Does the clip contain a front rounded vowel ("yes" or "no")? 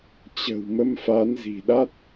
no